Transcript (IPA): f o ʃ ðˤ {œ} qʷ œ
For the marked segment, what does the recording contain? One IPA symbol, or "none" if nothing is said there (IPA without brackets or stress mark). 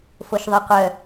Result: œ